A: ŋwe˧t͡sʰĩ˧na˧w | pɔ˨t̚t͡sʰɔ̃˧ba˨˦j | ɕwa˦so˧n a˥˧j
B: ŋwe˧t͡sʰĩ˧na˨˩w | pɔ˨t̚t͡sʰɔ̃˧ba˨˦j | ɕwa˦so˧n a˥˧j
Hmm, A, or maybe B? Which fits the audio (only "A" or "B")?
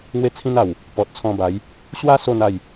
B